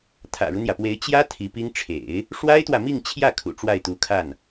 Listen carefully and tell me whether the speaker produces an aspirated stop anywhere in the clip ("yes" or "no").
yes